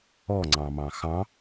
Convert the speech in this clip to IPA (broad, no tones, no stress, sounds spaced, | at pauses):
ɔ ŋ͡ǀ ɑ̃ m ɑ̃ x ɑ̃